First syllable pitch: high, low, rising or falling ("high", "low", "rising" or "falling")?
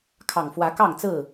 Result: low